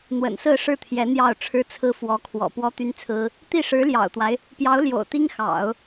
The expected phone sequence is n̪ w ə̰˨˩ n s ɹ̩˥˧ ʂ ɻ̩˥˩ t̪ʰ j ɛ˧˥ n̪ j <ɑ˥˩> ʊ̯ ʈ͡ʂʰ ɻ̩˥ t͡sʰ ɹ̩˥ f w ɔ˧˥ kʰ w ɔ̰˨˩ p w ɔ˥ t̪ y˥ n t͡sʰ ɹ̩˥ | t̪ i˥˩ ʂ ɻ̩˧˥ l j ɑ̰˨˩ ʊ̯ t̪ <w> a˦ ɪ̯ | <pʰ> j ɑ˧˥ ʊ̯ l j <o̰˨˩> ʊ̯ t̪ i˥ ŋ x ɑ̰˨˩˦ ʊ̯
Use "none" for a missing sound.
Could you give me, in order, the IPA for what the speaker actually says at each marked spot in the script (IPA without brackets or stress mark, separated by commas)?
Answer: ɑ˥˩, w, p, o̰˨˩